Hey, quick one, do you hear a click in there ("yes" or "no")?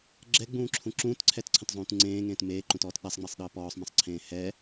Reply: yes